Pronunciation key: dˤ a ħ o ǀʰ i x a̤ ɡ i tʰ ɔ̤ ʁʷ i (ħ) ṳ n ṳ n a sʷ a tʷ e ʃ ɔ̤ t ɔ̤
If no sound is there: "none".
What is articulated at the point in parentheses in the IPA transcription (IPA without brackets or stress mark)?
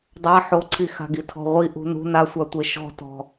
ʔ